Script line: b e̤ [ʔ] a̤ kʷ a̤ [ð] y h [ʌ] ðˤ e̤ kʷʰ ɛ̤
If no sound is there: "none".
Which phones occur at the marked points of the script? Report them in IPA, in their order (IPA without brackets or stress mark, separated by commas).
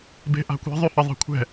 ʔ, ðˤ, ʌ